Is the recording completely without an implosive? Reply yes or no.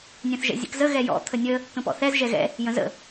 yes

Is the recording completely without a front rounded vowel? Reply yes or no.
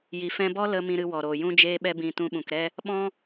yes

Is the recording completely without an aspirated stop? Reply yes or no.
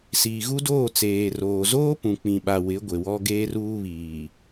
yes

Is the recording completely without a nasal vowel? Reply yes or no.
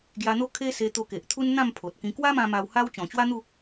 no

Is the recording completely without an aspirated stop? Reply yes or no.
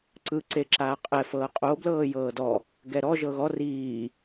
yes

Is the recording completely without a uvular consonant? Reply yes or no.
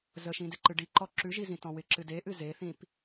yes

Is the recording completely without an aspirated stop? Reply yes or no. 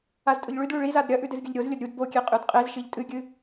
yes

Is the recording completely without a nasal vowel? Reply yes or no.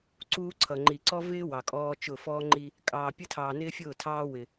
yes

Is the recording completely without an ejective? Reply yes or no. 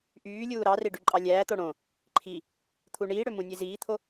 no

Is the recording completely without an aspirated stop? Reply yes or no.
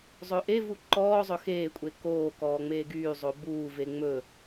yes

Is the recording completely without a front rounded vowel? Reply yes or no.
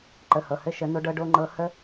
yes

